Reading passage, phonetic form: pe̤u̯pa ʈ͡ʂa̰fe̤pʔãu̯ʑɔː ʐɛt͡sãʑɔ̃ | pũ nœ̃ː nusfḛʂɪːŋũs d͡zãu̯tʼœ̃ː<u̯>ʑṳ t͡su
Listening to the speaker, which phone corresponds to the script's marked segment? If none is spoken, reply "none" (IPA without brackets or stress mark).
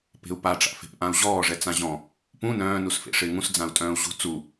u̯